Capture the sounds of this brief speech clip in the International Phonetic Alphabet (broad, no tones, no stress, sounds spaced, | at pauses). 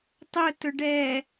tˤ ʊ t ʊ ɖ ɛ